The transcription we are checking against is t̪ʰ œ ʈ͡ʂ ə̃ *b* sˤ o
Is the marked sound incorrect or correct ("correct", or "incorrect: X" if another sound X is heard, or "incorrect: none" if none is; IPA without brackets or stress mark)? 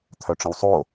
incorrect: w